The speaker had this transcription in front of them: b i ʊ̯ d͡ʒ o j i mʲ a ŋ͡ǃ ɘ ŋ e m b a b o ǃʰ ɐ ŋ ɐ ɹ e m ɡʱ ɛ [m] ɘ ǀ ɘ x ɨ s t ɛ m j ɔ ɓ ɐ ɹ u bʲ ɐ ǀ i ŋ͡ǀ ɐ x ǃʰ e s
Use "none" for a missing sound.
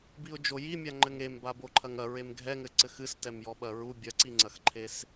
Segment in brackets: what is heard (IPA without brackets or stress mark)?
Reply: ŋ